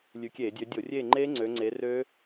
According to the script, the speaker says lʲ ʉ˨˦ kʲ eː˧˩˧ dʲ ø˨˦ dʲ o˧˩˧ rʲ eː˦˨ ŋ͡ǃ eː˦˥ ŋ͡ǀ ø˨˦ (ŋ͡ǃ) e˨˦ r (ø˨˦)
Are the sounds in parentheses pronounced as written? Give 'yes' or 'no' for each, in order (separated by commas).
no, no